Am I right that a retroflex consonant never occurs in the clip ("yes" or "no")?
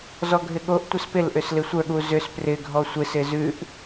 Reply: yes